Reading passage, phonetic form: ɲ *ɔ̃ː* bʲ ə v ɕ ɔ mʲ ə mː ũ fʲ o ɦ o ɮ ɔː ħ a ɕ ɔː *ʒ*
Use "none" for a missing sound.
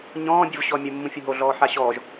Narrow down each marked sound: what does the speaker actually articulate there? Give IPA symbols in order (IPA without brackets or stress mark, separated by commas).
ɔ̃ː, ʒ